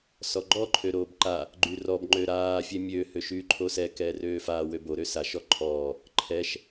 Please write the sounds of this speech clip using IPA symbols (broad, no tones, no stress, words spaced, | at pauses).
sɔɡ͡ǃɔ ǃʰøɾoːbǃa | ɡ͡ǃyrɔb ŋ͡ǃøɾaː fʲɛmʲø høʃyːǃʰosɛ kɛːrøːfaː wøbo ɾøsaʃ ɔǃʰɔː | ǃʰɛʃ